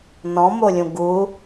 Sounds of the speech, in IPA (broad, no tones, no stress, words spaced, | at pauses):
nɔ̃molʲũ ɡu